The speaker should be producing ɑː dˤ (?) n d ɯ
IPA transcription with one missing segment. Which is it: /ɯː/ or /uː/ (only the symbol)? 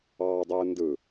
ɯː